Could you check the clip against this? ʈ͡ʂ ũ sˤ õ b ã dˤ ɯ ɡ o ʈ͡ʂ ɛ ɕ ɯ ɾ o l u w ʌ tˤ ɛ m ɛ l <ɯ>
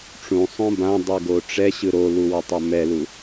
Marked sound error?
yes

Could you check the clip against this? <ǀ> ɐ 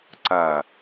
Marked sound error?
no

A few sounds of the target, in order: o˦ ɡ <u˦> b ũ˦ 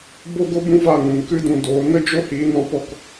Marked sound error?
yes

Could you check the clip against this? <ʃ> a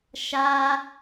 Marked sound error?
no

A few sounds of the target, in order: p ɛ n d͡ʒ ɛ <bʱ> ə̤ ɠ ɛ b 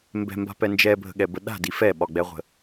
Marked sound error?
no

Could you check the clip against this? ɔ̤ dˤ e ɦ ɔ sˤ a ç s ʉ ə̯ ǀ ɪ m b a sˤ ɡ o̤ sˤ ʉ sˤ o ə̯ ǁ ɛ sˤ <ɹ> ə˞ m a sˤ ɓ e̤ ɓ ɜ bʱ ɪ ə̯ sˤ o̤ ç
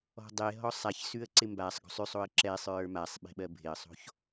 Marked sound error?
no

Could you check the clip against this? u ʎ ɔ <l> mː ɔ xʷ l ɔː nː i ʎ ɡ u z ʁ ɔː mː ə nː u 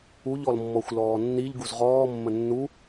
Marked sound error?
no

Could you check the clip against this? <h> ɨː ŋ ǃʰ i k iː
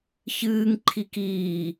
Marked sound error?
yes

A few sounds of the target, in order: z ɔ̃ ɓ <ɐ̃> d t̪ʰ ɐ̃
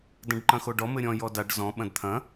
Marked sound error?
no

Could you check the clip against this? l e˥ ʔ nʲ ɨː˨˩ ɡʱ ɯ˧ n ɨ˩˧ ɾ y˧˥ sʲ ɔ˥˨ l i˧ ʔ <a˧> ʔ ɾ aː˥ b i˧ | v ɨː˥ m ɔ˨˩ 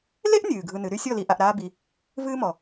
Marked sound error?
no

